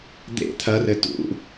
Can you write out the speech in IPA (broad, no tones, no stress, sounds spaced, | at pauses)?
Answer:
d̪ ḛ t̪ʰ ɐ r ɘ t ṵ